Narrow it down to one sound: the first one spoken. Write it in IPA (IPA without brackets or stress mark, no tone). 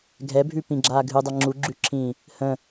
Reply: ɡʱ